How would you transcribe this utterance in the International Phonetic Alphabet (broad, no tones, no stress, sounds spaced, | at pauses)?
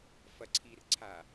f ɐ ǀʰ i r ǀʰ a